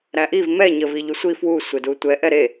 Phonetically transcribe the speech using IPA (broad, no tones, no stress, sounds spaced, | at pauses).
ɾ æ ʔ i v m ɛ ɲ ə v i ʎ u sʷ i f w u sʷ e d u tʷ ɛ ʔ ɛ ɾ e